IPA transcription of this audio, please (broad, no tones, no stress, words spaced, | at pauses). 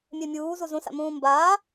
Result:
mʲɛmʲuː zuzũsa̰ mũːmbaː